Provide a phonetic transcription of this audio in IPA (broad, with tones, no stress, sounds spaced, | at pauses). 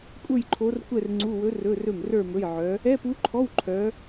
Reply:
kʷʼ ə˞˥˧ j ǃʰ o˧˥ r kʷ ɛ˥˧ r ŋ͡ǀ u˧˥˧ w ɵ˧˥ r ɵ˧˥˧ r ɵ˥˩ m r ə˞˥˧ m ɵ˧˥˧ j ʕ œ˧˥ | ɛ˧˥˧ p u˧˥ ǃʰ ɔ˧˥˧ w ǃʰ œ˧˥